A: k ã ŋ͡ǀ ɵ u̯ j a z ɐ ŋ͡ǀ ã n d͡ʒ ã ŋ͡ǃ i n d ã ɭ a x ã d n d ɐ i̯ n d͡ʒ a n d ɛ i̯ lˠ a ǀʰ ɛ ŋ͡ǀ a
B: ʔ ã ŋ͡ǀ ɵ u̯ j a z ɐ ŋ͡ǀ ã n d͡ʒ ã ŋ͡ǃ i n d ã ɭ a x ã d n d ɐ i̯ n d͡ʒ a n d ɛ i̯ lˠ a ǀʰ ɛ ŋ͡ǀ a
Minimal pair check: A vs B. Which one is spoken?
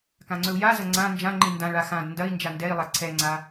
A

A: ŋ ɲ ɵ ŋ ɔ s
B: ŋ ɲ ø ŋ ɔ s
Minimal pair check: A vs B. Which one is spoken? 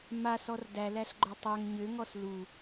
B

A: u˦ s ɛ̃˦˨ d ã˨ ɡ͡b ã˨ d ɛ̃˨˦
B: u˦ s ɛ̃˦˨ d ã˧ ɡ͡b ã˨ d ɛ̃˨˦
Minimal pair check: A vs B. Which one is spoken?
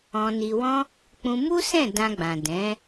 B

